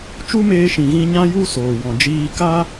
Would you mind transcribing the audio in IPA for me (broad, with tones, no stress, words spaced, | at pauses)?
t͡ʃu˦meː˧ʃĩ˨ɣĩ˧ ɲã˦ju˦ soː˨wɔ̃˨d͡ʒiː˧ ka˦